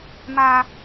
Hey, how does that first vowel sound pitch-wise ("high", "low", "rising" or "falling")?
high